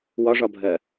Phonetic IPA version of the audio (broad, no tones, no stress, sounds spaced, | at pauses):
w ɒ ʐ ɒ bʱ ɜ